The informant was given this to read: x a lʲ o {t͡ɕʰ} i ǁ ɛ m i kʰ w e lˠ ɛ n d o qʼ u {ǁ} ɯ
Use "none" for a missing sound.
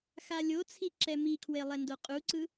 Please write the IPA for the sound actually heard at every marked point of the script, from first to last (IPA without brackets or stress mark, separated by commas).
t͡sʰ, ǀ